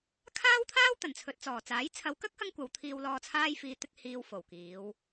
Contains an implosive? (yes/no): no